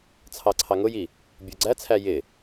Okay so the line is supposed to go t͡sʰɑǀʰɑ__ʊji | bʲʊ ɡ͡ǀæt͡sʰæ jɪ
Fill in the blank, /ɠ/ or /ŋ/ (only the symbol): ŋ